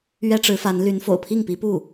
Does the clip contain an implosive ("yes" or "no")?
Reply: no